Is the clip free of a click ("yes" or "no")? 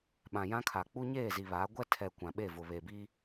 yes